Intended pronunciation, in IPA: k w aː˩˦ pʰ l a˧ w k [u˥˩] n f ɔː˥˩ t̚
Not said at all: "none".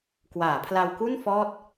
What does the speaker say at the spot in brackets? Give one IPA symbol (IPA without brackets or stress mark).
u˥˩